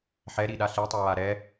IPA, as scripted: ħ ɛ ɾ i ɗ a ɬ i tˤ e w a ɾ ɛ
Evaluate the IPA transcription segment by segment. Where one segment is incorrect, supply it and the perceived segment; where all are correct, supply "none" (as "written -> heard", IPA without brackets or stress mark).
none